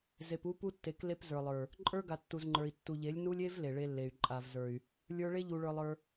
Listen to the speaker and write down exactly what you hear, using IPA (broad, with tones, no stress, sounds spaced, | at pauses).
z e˨ p u˦ p u˦ tː e˨˦ k l e˦ p z ə˞˨ lˠ ə˞˨ | ǃʼ ə˞˦ ɡ a˨ tː u˨ z ŋ͡ǃ ə˞˨ i̯ tː u˨ ʎ e˨˦ lʲ n u˦ lʲ e˦ v l e˨ ɭ e˦ lː e˨ y̯ ǃʼ a˨ v z ə˞˨ y̯ | lʲ ə˞˦ ɭ e˦ ʎ u˨ ɭ ə˞˨ lˠ ə˞˦